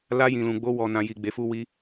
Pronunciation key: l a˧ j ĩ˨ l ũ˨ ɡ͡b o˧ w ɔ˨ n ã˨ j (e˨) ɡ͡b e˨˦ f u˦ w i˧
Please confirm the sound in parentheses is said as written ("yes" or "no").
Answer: no